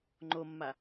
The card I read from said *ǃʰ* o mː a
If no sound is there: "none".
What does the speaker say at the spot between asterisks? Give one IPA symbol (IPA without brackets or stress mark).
ŋ͡ǃ